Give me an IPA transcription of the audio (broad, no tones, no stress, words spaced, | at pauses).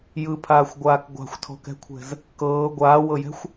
jɯpʰaːxʷɡʷaːk ɡʷa̤xʷtʰɔ̤kɛ̤kʷʰɛ̤z | kɤː ɡʷaːwɤjɛ̤xʷ